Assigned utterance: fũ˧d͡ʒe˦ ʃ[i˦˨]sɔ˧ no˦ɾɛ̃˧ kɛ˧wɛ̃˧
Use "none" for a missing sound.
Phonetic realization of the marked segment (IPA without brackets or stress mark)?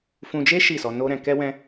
i˦˨